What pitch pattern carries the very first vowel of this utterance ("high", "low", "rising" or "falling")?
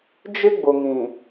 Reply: high